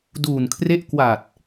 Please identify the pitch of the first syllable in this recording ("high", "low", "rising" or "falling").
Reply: low